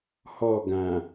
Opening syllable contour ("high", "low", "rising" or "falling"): falling